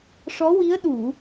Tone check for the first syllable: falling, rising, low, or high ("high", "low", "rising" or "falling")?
rising